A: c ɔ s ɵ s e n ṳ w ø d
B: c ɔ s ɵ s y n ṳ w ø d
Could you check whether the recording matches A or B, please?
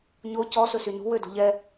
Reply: B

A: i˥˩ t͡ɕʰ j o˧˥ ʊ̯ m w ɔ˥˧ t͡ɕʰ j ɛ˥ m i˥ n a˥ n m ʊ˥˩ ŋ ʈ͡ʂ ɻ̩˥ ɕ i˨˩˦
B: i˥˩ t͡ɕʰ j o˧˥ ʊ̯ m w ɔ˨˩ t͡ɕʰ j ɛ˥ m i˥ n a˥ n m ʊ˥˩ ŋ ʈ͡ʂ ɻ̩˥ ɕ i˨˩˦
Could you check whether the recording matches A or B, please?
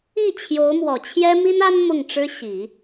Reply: B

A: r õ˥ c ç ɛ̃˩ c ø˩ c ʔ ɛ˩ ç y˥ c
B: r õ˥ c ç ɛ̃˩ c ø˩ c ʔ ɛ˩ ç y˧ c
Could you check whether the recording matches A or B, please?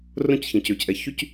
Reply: A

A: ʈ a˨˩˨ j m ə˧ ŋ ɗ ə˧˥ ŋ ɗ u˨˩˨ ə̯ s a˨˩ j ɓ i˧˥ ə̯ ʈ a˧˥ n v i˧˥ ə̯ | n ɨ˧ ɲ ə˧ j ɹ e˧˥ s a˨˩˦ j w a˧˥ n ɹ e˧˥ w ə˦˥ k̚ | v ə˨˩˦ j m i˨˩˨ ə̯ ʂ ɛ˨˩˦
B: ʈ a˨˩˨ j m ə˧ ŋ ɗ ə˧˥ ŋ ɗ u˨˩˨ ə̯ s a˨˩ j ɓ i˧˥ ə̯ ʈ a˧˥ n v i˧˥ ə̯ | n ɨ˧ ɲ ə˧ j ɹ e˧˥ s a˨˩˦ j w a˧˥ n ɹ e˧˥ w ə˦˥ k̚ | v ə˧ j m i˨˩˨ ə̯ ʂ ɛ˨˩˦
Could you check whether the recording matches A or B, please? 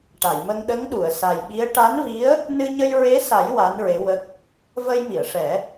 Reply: B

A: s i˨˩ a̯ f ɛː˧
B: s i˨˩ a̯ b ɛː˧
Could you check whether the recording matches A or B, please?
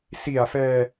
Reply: A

